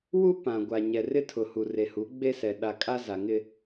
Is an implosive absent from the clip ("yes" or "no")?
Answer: no